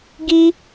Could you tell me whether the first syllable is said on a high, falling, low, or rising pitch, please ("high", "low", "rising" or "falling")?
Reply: high